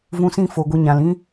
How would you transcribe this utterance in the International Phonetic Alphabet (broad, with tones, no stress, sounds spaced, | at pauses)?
v ũ˧ s ĩ˦˨ f o˨ ɡʷ ə˧ ɲ ã˨ l ĩ˦